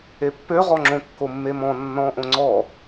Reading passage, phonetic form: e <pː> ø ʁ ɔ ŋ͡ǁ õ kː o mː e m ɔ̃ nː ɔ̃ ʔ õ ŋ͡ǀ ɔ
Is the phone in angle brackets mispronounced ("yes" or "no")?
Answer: no